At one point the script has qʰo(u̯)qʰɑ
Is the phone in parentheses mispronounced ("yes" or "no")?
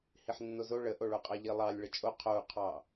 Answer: no